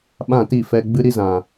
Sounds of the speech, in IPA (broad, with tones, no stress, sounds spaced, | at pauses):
ɓ ã˦˨ t i˦˨ f ɛ˧ ɡ͡b ɨ˦ ɾ i˦ z ã˨